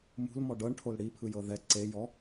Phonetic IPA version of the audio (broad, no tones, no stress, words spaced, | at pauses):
mṳlmɔ ɖɤɳʈʰol ɽipʰɯjɤ ðɛ ǀejɔ